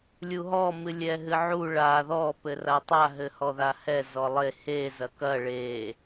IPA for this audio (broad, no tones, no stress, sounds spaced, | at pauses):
lʲ u ɦ ɔ m ɨ lʲ ɛ ɦ ɨ ʕ u ɭ a ð ɔ p ɘ r a tˤ a ɦ ɘ h ɔ ð a h ɛ z ɔ lˠ e h e z ɐ k ɐ ɭ e